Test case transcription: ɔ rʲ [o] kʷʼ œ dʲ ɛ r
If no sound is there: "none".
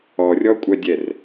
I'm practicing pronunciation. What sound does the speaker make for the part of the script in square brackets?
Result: ɔ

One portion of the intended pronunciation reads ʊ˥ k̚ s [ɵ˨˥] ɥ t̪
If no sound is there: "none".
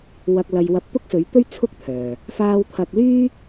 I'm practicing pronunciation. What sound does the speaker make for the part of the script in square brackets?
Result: ɵ˨˧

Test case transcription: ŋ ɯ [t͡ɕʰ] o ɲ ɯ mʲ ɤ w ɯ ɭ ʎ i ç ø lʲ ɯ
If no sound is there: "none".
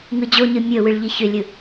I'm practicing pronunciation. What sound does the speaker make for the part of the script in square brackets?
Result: d͡ʑ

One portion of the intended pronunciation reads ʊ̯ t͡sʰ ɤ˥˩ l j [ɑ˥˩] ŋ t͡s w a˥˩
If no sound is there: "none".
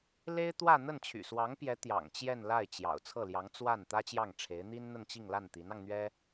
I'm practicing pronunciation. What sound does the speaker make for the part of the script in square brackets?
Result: ɑ˧˥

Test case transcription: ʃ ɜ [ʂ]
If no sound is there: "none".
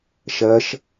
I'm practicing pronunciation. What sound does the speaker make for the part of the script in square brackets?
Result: ʃ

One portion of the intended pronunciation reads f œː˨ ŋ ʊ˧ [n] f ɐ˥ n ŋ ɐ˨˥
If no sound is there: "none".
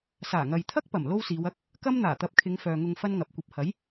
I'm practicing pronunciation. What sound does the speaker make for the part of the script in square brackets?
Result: ŋ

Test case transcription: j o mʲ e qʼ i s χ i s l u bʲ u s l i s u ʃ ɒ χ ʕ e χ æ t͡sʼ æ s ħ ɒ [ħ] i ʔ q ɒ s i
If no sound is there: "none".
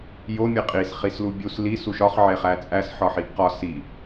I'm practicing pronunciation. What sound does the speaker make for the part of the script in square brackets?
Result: ħ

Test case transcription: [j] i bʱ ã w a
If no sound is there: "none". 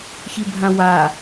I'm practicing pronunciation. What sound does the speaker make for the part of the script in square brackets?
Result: ç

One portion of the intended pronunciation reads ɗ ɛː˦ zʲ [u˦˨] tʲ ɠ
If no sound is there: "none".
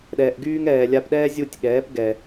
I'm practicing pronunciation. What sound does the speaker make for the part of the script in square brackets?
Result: u˦˨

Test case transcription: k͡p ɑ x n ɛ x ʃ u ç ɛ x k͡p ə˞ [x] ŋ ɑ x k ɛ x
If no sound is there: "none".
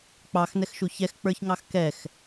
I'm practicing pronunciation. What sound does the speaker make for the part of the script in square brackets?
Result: ç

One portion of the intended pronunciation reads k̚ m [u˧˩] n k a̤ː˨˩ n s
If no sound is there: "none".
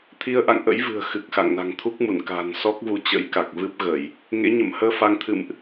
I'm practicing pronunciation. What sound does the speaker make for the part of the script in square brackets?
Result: u˧˩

